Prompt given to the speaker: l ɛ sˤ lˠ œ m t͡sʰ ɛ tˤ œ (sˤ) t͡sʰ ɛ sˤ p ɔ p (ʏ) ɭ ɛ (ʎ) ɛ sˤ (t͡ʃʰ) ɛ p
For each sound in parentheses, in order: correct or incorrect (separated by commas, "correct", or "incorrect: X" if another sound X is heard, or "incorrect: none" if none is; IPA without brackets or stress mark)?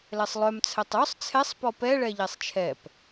correct, incorrect: ɛ, correct, correct